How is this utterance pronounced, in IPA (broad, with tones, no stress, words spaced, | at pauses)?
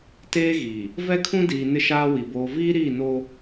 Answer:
teː˦ɣiː˨ | vɛ˦kʰũ˦diː˨ nɪ˦ʃaː˦wi˨ boː˨viː˦ɾiː˦˨noː˦